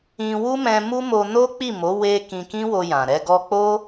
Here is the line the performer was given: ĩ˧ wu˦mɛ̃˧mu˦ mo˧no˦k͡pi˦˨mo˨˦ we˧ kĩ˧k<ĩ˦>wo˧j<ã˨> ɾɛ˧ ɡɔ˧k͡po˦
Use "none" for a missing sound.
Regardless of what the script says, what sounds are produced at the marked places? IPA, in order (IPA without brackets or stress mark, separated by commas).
ĩ˦, ã˨